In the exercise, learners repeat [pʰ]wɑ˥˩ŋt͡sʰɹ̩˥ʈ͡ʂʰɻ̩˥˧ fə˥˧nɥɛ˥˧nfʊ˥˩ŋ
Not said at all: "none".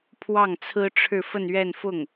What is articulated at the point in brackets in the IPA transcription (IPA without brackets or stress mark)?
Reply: pʰ